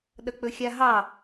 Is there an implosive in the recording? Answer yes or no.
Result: yes